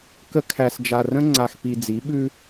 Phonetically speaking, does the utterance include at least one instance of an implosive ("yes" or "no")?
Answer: yes